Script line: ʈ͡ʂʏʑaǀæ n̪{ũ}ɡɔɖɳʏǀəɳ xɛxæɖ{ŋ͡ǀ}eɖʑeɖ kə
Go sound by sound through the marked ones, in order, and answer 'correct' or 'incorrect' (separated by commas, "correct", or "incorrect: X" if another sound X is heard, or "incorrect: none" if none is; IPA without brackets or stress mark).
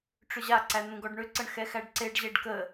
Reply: correct, incorrect: ǀ